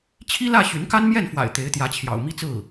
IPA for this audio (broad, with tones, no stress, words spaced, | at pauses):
t͡ɕʰi˥lä˥˩ ɕy˧˥nka˥nmjɛ˥˩nfwa̰˨˩ɪ̯ t̪e˧˥ɪ̯t̪jä˧˥t͡ɕʰjɑ̰˨˩ʊ̯ mi˥˧t͡sɹ̩˥˩